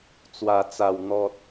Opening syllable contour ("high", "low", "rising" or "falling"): low